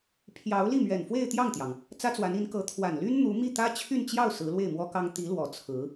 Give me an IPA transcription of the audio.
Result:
pʰ j ɑ˧˥ ʊ̯ l i˥˩ m ɥ ɛ˨˩ n f w e˥˧ ɪ̯ t̪ j ɑ˥˩ ŋ t̪ j ɑ˩ ŋ | t͡s ä˥ t͡s w a˧˥ n i˧˥ n k ɤ˧˥ t̪ʰ w a˨˩ n l y˥ n n̪ u˧˥ m i˥˩ t̪ ä˥ t͡ɕʰ y˥˧ n t͡ɕ j ɑ˥˩ ʊ̯ s ɹ̩˧˥ l w e˥˩ ɪ̯ m w ɔ˥ k ɑ˥ ŋ t̪ i˧˥ l w ɔ˨˩ t͡sʰ ɹ̩˧˥

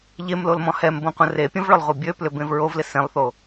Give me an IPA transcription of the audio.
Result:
ʎ e m l o l m ɔ̃ h ɛ m b õ qʷ ə̃ r e pʲ ə̃ v ɭ ʊ lˠ ʁʷ ə bʲ ø p l ʏ b ẽ v ɹ o v l ɪ s ẽ lˠ θ o

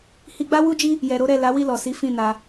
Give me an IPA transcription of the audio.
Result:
h i˧ ɡ͡b a˦ w u˦ d͡ʒ i˦ | j ɛ˨ ɾ o˨˦ ɾ ɛ˦˨ l a˨˦ w i˦˨ l ɔ˨ s i˨˦ f ĩ˦˨ n a˧

